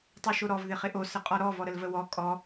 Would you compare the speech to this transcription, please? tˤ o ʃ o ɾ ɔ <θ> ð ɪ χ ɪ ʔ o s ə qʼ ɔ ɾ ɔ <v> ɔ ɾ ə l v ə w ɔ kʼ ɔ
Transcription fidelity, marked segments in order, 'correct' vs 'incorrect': incorrect: v, correct

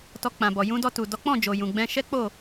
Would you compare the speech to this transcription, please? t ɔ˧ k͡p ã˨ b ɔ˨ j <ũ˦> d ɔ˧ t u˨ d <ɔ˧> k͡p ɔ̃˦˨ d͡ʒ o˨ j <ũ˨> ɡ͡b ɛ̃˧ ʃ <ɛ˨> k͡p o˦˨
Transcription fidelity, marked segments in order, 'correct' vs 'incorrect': incorrect: ũ˧, incorrect: ɔ˨˦, correct, incorrect: ɛ˦

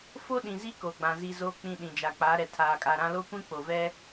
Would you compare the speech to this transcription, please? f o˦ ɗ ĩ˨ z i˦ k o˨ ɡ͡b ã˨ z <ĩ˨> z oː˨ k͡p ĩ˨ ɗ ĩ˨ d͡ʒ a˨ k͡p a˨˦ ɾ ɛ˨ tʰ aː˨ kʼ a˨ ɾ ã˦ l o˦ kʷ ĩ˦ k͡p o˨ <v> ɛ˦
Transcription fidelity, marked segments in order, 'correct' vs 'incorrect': incorrect: i˨, correct

